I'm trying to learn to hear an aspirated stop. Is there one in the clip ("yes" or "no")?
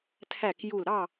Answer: yes